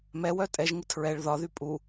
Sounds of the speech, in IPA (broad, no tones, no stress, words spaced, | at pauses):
mɛwœ tʼɛʒŋɪ tʰɹɛɭ ðɒðy pʼu